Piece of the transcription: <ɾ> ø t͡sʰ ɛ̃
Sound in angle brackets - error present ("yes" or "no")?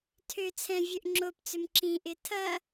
yes